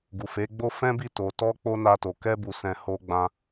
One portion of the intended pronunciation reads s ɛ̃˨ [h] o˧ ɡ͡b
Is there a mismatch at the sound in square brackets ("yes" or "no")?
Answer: no